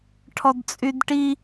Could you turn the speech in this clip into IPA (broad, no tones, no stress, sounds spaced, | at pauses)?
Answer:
ʈʰ ɔ d t͡sʼ y d ʈ i